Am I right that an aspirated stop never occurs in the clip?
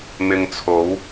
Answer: no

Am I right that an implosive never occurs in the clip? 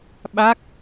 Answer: no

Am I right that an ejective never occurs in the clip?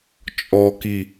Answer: no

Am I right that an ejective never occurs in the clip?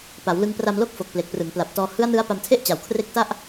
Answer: yes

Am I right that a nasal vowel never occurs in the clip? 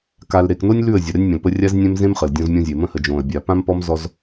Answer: no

